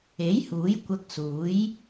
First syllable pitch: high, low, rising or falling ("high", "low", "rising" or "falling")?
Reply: rising